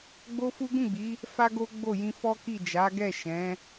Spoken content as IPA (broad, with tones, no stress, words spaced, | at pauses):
ɡ͡bo˦fu˦ ɡũ˦˨ɡ͡bi˨˦ | fa˦ɡo˦ɡ͡bo˦˨jĩ˧ fɔ˦ki˦˨ d͡ʒa˨˦ɡɛ˦˨ʃɛ̃˨˦